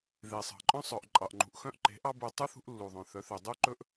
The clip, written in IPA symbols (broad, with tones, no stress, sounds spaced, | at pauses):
ð e˨ sˤ ɑ̤˨ ǃʼ œ̃˦ sˤ œ˨ ʔ ǃʼ ɑ˨ ʔ ŋ͡ǃ ṳ˨ ʔ x œ̃˦ ʔ ǃ e̤˨˦ ʔ ɑ˦ b u˨ tˤ u˦ θ ṳ˦ ʔ lː u˨ ðˤ œ̃˨ θ œ˨˦ θ ø˨ dˤ u˦ ǃ ɵ˦ ʔ